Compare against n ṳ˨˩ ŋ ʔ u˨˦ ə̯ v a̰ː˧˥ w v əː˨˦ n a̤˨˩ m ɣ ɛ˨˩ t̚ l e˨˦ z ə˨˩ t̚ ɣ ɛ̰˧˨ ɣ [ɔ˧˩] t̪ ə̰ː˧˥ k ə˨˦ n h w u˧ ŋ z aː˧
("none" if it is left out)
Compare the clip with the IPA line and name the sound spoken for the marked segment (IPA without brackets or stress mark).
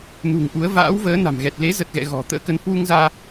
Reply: ɔ̤˨˩